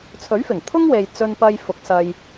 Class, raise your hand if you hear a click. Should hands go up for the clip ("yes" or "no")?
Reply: no